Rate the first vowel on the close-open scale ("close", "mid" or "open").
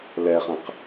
mid